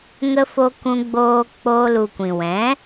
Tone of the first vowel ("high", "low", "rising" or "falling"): high